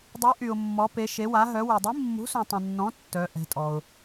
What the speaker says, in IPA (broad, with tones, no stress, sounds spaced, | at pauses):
dˤ y˨˥ ʔ y˨ ʊ̯ mː ɔ˨˥ p e˨˥ ʃ e˨˥ w a˨˥ ɦ œ˨˥ w u˨ dˤ i˨˥ mː ṳ˨˥ s ũ˨ tˤ ə̃˨ nː ɔ̃˨˥ tː œ˨˥ ʔ ɛ̤˨˥ tʼ ɔ˨ ʊ̯